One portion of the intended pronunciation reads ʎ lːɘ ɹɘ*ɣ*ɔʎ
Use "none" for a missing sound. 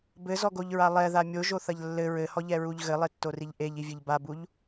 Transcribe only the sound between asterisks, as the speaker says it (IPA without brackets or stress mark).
h